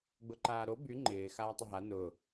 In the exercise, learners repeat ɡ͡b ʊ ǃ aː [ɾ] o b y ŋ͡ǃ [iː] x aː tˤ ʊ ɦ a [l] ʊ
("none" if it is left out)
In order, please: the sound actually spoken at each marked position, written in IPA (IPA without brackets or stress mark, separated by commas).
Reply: ɾ, ɪː, n